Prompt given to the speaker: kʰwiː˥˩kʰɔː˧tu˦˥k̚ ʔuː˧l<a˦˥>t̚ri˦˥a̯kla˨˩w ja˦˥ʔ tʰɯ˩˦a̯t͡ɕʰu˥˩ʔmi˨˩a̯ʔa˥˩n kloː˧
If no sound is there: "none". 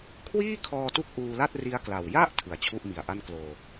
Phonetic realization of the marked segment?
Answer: a˥˩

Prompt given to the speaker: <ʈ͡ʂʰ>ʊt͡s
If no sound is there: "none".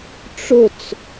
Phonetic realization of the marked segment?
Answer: ʈ͡ʂ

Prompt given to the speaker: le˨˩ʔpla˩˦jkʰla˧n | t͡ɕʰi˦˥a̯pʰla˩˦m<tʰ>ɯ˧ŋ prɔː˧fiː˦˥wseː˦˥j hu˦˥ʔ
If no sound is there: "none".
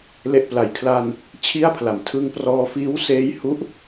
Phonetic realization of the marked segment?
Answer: tʰ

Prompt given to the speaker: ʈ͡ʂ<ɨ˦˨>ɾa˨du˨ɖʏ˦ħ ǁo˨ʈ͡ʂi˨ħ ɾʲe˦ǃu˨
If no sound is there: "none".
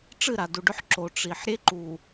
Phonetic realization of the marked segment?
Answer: ɨ˦˨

